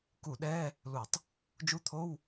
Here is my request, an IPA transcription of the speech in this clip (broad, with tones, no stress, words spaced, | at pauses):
ku˧˩˧ɗɛː˧˥˧ | lu˧˩˧tˤ | d͡ʒu˧˥˧t̪ʰo˧˥˧w